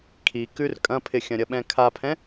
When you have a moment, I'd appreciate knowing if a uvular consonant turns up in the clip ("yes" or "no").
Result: no